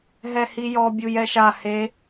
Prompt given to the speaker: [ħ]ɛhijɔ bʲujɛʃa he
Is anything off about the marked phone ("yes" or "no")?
yes